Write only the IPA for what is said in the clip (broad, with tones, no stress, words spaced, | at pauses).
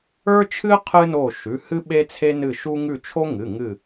ə˞˥t͡ʃʰɨ˥ qʰɨ˥no˦˨ ʃʉ˩˧˩hɨ˥ ɓe˥t͡sʰe˥nɨ˦˨ʃu˥ ŋʉ˦˨t͡ʃʰo˥ŋɨ˩˧˩ ŋɨ˦˨